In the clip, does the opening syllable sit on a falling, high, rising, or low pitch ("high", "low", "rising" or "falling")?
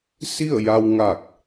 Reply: falling